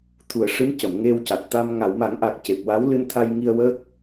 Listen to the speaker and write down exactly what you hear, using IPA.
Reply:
t̪ʰu˨˩ə̯ʂɨ˧˥mcə˨˩˨m ŋe˧wca˨˩t̚t̪a˧m ŋa˨˩˨wma˨˩˦ŋʔa˨˩k̚ ce˨˩p̚wa˧˥wlɨ˧nt̪ʰa˧j ŋi˧ə̯wəː˦˥k̚

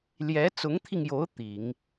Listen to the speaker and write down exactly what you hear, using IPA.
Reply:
ljɛ˧˥t͡sʊ˧˥ŋt̪ʰi˧ŋjo˧˥ʊ̯ t̪i˨˩˦ŋ

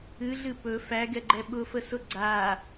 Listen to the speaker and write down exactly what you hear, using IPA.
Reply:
ɨɮɨ pɵ fæɡɛɡ͡ǃɛ ɓʊfəsʊ ɡ͡ǀa

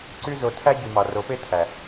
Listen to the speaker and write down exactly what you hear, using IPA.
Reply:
ǀy˧zo˨ tʰæ˦ ɟy˨mɑ˨ro˨˦pe˦ tʰæ˨

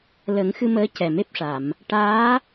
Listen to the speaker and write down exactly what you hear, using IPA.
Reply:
lə˨˩˦ŋxɨ˧məː˧˥ cɛ˨˩me˦˥p̚ʂa˨˩˨m | ʈaː˧˥

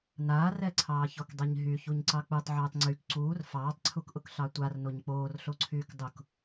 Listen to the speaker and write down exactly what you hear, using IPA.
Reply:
naːrɛǀʰɑː çɔkdˤɛɲɦy çuɲǀɑk͡putˤʕyːtˤ ŋ͡ǀyk ǀuːr fɑːtˤǀʰukʔʊk ɬɑtʷar noɲk͡poːrɬoǀʰyːk dˤʊk

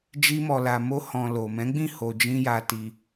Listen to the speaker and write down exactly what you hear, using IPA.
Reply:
d͡ʒi˧mɔ˨la˨mo˧ hɔ̃˨ lo˨ mɛ̃˨˦ɡ͡bĩ˦˨ ho˨d͡ʒĩ˧ ja˧ti˧

